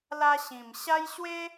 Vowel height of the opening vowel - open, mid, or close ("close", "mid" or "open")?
open